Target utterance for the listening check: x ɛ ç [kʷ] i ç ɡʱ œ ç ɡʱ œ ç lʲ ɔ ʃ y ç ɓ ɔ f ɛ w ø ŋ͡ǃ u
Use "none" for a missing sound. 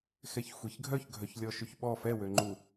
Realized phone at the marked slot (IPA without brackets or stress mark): xʷ